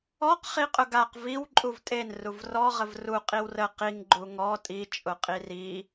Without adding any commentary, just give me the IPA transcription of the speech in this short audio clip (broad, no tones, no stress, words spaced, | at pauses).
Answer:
ɔq χiqʼʊɡaq viw ǃʼuvtʼen ruvrɔ ʁəvru qʼiwrə qiŋ ɡ͡ǃuŋɔ tʼi t͡ʃʼʊqʼiri